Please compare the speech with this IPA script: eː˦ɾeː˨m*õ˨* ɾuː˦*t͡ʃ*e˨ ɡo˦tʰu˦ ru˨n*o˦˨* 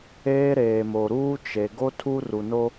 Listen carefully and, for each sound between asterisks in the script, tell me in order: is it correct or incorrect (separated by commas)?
incorrect, correct, incorrect